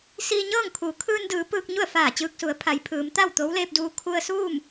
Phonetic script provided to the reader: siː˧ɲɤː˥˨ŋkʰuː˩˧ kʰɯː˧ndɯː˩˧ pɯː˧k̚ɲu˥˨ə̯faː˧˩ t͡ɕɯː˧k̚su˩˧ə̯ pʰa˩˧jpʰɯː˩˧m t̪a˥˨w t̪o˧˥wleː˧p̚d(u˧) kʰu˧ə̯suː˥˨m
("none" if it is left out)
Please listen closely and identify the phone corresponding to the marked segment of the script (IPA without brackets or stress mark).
uː˧